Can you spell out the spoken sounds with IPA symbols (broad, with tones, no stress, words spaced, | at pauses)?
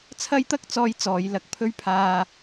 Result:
t͡sʰɐ˥jt̪ɐ˥k̚t͡sɔː˧j t͡sɔː˨˧jlɐ˧k̚pʰɵ˥ɥ pʰaː˧